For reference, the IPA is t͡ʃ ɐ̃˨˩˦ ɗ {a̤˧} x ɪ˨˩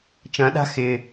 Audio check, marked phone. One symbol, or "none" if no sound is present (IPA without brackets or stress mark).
a̤˧